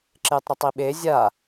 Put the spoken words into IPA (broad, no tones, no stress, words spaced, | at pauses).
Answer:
ǁɪːtˤɾətˤiɓe zʲa